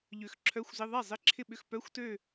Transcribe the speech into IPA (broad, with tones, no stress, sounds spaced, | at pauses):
ʎ ø˨˥ x ǁʰ œ˧˥˧ xʷ z ɪ˧˥˧ ðˤ ɛ˥˩ zˤ ɪ˧˥˧ ǁʰ ɪ˥˧ ɓ ʏ˧˥˧ x p œ˧˥˧ xʷ t ø˥˧